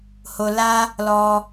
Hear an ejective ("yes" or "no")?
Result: no